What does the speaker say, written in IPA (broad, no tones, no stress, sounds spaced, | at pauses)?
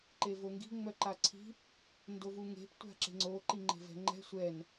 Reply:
ǃ e v o ŋ ɡ i̤ ŋ͡m œ ǃ a ǀʰ i̤ | n d o v u ŋ e̤ p tʷ a̤ ǁ e̤ ŋ͡ǀ o ǃ i ŋ͡ǃ e̤ v ɛ̤ ŋ͡ǃ ɛ̤ sʷ ɛ n